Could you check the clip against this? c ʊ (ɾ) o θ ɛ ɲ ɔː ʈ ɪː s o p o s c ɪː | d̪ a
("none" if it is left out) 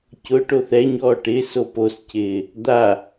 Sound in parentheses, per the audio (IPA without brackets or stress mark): ʈ